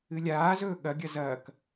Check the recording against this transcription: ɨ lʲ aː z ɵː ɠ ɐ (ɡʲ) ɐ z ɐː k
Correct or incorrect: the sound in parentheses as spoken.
correct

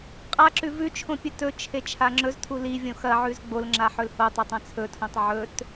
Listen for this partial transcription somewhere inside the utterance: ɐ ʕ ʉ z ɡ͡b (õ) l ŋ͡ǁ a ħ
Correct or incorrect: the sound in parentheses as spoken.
incorrect: o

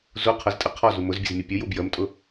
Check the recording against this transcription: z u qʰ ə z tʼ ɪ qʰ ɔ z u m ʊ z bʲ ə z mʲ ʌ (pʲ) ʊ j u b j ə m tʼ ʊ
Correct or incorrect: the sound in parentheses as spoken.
correct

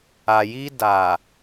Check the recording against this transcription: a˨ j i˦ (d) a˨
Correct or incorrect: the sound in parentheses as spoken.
correct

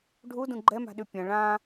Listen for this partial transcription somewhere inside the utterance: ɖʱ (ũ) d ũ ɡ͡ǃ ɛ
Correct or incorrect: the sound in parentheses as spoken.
incorrect: u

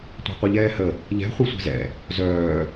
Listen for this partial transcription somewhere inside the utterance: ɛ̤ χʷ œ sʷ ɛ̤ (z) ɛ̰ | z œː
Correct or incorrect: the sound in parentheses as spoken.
correct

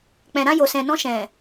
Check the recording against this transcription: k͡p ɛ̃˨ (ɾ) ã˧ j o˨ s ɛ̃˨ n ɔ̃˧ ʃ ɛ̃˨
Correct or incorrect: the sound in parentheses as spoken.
correct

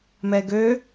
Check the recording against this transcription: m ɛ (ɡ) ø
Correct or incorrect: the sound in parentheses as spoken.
correct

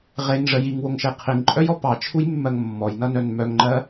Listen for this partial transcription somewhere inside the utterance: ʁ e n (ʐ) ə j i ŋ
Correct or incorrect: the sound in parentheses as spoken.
correct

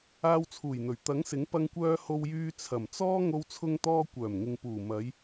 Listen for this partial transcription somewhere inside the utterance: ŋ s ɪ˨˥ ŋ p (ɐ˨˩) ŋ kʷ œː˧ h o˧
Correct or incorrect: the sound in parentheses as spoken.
incorrect: ɐ˧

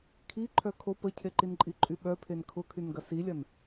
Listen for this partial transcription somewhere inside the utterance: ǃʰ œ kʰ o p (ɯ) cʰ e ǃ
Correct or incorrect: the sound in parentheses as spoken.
incorrect: ə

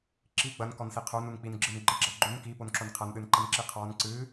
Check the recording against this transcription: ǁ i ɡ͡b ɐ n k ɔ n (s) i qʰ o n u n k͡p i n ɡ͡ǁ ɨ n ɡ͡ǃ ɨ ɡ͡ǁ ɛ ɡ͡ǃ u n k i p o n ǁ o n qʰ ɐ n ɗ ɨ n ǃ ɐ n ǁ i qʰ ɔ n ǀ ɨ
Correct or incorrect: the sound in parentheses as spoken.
correct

